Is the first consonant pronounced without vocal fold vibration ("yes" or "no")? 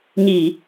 no